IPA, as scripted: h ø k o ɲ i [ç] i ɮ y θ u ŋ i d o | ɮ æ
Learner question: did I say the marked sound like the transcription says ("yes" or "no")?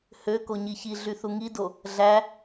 yes